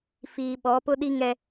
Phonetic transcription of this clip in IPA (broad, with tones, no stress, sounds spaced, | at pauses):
f iː˨ ɓ ɔ˨˦ p ʊ˦ ɗ i˦ ŋ ɛ˦